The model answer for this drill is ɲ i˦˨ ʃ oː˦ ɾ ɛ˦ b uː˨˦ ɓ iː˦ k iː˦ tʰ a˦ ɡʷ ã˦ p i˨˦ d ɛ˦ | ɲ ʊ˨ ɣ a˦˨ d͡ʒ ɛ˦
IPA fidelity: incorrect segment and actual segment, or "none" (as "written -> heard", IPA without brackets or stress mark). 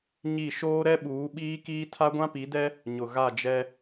b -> ɓ